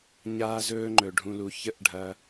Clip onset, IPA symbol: ɲ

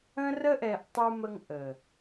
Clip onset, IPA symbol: ə̃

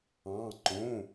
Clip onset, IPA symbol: ɑ̃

